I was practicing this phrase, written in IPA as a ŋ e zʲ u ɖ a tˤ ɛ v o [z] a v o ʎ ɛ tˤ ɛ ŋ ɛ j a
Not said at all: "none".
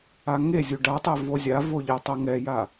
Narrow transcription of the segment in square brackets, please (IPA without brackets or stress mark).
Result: zʲ